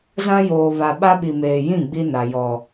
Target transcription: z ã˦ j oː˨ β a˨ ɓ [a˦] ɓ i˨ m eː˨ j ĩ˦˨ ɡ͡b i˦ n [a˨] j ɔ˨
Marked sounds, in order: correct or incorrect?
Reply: correct, correct

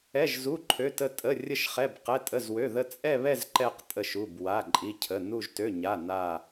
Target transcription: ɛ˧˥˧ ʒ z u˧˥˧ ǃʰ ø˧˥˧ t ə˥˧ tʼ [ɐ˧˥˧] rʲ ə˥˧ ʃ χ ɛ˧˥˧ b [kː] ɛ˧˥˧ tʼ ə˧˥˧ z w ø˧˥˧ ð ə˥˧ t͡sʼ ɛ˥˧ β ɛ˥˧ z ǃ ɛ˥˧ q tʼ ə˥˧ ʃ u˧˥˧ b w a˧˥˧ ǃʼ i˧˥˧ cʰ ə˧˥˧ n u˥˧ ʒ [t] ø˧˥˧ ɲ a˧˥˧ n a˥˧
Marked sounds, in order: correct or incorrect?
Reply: incorrect: ə˧˥˧, incorrect: q, correct

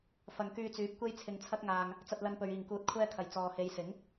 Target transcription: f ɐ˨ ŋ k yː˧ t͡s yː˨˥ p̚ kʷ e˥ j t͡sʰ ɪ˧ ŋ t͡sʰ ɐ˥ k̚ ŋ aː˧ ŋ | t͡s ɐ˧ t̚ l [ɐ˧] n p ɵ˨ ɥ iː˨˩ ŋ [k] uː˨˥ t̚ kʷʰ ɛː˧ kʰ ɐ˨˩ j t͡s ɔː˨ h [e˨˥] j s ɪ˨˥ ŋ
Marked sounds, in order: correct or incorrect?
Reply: correct, correct, incorrect: e˨˧

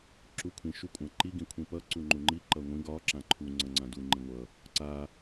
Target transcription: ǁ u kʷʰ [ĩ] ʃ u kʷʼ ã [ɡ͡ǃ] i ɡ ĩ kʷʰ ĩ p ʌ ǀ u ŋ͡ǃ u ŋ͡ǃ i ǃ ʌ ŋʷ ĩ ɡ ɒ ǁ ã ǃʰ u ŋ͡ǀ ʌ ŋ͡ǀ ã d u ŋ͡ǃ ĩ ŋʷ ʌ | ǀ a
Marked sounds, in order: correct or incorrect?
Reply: correct, incorrect: ǃ

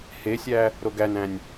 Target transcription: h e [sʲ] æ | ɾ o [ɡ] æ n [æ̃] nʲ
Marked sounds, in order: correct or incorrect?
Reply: correct, correct, correct

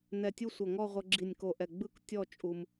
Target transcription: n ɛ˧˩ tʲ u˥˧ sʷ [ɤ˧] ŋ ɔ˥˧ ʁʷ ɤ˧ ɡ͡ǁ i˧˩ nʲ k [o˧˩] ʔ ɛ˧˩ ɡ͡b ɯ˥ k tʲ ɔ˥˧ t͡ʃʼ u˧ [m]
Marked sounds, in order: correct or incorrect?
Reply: incorrect: ɤ˧˩, correct, correct

